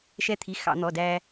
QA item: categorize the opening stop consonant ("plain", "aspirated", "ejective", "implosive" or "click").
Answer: aspirated